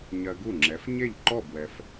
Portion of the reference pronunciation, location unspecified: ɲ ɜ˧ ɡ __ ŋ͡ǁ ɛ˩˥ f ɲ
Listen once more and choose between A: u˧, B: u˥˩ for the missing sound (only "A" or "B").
B